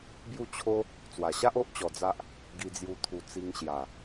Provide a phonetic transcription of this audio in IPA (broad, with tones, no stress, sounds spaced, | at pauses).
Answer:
b j u˥˧ t͡ɕʰ o˦ | t͡s w a˨˩ ɕ a˦ ʔ o˦ ʔ t͡ɕ ɔ˧ d͡z a˦ ʔ | ɡ i˧ d͡z j u˧ t̪ʰ u˧ t͡s i˧ ŋ ɕ j a˨˩